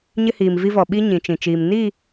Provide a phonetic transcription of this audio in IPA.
ɲɪ˦hiː˨mvi˦vɔ˨ ɓi˦ ɲĩ˨t͡ʃĩ˨t͡ʃiː˨m ni˦˨

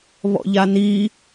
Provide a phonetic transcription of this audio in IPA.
βɔ̰ʎani

